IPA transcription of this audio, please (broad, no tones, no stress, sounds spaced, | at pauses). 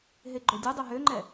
ɦ e ɡ͡ǃ o dʲ ɨ dˤ ø ɦ ø ŋ͡ǃ ɛ